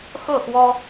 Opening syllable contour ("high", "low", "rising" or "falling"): falling